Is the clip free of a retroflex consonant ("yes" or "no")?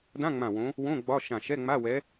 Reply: yes